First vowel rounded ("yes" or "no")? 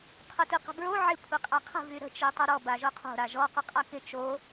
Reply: yes